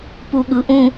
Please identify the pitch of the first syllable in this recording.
low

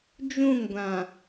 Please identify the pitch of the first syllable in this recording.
falling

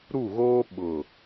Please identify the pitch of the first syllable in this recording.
falling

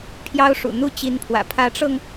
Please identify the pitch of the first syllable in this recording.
high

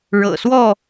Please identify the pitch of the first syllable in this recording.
low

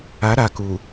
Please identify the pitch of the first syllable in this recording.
rising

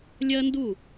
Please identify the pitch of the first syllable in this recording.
high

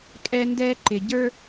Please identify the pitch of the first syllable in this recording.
high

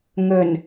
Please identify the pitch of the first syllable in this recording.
low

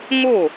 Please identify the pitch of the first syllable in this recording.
falling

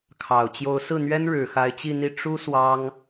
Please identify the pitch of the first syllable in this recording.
low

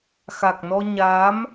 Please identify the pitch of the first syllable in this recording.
low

